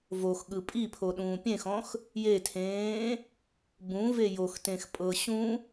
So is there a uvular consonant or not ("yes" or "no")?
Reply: no